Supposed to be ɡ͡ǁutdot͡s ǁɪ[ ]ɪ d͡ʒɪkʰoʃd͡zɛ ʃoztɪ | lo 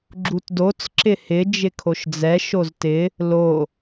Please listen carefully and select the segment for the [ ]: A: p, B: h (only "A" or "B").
B